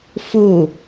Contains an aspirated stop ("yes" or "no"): no